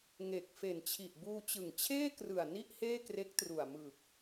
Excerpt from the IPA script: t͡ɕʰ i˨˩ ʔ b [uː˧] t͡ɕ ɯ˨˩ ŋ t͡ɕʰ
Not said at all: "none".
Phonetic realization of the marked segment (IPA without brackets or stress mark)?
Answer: uː˧